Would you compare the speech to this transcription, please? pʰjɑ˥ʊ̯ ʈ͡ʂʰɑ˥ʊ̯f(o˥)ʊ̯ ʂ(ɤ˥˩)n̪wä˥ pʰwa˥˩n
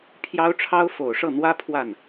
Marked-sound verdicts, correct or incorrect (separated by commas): incorrect, correct